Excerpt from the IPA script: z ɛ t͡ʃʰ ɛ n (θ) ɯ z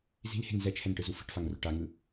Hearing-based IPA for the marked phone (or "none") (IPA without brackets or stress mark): ʈ